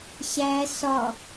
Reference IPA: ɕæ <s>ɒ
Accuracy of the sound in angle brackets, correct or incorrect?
correct